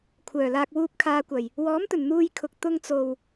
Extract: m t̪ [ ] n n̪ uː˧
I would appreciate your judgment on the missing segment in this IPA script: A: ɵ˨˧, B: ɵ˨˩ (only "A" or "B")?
B